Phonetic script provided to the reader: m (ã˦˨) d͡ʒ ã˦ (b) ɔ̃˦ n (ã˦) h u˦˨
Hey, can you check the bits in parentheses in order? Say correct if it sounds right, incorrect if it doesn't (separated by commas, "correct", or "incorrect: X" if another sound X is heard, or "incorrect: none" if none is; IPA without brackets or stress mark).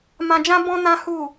incorrect: ã˧, correct, correct